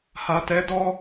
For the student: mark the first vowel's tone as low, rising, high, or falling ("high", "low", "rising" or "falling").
low